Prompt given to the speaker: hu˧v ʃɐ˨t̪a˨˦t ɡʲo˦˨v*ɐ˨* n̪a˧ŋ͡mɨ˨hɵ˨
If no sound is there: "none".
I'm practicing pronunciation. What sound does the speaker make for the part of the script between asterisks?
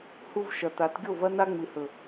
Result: ɐ˦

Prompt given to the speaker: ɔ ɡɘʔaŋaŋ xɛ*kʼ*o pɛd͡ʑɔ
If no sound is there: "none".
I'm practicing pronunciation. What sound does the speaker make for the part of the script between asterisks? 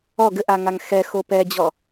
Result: x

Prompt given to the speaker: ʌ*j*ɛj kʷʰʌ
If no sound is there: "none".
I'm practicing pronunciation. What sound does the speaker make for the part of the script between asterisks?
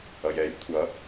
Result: j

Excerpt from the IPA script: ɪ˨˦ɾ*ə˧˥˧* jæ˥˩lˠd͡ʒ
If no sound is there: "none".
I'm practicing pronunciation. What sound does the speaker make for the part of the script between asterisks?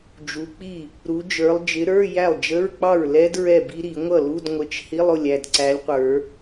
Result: ə˞˧˥˧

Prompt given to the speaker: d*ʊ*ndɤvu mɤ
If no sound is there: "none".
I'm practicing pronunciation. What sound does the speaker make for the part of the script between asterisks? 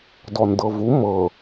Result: ɔ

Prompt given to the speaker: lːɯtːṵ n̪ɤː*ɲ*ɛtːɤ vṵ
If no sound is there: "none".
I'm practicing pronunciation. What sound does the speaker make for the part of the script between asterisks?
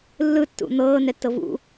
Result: n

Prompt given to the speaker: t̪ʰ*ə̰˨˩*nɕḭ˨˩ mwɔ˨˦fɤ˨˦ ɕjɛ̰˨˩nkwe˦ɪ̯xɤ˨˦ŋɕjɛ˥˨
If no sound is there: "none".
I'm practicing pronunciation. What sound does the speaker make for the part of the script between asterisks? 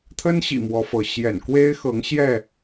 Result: ə˦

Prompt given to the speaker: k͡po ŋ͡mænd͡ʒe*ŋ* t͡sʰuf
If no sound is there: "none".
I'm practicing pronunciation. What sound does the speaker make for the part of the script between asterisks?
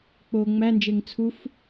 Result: ŋ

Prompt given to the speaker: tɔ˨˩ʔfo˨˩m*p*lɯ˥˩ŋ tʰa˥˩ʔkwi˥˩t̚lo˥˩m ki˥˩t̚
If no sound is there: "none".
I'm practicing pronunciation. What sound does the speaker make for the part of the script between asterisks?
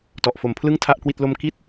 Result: pʰ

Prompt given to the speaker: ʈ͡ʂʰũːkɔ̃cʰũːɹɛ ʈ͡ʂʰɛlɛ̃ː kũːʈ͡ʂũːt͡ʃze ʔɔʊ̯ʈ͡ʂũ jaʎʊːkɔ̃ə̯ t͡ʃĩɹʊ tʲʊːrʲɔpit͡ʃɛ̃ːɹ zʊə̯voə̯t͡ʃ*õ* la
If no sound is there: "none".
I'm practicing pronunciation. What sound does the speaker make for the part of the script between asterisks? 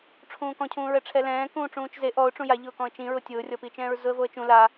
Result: ũ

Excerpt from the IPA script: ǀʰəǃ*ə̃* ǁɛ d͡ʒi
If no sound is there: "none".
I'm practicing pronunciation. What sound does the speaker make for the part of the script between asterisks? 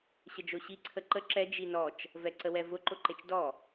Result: ə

